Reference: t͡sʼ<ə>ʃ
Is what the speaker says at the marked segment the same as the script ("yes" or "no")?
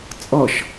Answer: no